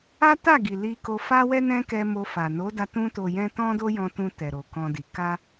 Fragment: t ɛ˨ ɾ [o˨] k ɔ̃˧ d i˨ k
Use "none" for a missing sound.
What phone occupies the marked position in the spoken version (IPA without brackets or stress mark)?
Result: o˨